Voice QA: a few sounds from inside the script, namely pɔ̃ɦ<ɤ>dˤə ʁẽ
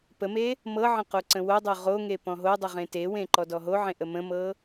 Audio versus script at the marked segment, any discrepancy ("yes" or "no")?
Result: yes